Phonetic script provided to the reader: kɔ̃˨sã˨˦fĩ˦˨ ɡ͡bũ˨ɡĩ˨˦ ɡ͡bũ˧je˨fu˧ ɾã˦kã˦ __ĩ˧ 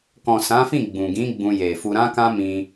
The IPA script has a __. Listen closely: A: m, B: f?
A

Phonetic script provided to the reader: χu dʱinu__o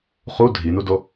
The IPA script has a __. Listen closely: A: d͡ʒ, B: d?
B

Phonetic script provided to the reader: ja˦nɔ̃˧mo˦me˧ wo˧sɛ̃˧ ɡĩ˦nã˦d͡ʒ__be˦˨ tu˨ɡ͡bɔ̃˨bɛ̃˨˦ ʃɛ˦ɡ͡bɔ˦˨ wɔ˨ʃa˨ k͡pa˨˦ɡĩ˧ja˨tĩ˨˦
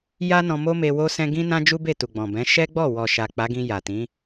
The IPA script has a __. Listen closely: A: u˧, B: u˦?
B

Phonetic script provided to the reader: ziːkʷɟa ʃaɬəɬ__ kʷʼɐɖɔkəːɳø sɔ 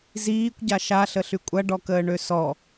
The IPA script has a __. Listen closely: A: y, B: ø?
A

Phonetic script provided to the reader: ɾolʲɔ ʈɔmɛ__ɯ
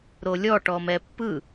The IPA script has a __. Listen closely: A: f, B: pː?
B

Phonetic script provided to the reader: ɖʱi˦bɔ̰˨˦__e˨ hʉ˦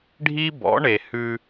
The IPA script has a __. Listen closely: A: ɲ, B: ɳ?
B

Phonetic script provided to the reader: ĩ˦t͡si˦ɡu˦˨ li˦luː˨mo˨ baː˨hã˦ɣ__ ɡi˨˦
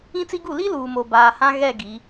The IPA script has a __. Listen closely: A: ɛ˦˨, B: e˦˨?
A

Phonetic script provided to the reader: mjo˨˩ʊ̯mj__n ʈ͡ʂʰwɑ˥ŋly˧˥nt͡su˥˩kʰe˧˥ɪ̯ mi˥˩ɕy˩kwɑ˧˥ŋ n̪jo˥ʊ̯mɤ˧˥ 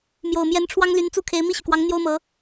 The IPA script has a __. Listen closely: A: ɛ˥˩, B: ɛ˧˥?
B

